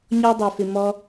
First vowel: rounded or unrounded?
rounded